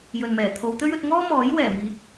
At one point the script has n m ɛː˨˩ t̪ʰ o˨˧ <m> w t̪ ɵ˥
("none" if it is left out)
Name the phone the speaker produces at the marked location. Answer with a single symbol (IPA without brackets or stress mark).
none